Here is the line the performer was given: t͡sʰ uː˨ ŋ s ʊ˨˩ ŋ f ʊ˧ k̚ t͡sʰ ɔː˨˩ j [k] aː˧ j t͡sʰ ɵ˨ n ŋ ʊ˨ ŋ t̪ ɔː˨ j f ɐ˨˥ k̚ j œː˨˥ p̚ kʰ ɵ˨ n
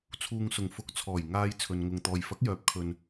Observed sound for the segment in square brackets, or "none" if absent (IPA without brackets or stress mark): ŋ